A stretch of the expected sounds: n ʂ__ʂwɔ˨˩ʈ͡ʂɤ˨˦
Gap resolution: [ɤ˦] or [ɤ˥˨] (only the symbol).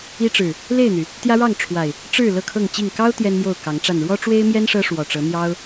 ɤ˦